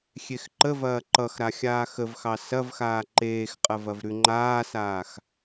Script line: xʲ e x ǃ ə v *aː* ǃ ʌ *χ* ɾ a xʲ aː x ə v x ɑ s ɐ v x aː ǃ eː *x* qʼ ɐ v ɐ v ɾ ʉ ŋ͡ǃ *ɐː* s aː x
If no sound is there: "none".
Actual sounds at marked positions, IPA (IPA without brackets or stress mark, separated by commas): ɐː, x, x, aː